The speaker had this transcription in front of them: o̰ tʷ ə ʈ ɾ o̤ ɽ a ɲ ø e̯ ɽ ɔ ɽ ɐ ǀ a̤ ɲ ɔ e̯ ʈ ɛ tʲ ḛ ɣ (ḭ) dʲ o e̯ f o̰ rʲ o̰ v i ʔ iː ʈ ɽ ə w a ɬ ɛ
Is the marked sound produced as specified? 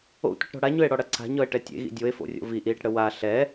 yes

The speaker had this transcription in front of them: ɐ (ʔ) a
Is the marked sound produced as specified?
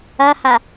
no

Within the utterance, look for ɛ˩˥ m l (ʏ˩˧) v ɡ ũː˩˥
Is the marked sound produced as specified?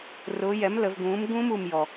no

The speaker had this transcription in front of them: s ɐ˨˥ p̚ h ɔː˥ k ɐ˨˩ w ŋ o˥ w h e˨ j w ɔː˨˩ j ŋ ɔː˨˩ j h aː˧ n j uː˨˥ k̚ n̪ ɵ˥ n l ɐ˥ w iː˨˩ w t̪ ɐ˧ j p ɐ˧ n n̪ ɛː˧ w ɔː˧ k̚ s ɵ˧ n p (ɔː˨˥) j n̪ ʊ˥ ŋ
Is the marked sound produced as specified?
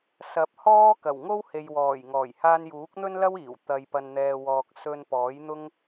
yes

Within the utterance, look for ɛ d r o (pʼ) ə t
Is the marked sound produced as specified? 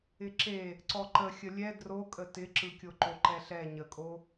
no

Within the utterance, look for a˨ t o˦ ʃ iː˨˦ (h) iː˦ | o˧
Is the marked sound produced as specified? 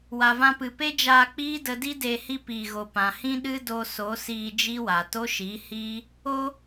yes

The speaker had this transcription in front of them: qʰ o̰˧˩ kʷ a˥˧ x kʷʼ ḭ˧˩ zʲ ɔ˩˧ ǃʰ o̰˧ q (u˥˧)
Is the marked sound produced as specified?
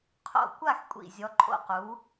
no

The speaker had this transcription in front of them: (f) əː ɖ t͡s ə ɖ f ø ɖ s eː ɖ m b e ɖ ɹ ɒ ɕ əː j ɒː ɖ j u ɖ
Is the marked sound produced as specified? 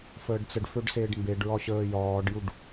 yes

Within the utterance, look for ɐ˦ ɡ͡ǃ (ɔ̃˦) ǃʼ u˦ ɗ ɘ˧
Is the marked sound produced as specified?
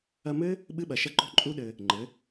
no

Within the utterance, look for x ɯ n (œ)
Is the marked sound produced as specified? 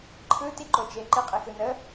no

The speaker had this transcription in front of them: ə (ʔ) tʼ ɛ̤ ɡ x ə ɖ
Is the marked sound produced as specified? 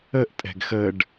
yes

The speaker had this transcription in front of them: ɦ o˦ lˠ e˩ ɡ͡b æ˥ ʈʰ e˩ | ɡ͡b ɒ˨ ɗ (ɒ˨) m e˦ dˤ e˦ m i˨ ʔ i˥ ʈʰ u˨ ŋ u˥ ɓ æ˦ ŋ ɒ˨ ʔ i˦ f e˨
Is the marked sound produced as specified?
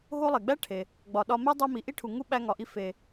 no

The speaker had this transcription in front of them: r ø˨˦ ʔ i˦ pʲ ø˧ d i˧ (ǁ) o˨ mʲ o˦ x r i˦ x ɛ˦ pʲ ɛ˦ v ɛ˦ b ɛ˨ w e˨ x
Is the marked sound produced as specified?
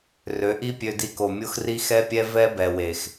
no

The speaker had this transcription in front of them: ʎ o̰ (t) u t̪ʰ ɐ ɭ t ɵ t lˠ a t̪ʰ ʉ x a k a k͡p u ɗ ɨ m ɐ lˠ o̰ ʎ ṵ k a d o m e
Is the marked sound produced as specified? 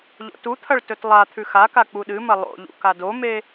yes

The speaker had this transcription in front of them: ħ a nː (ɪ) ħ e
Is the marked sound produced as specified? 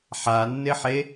yes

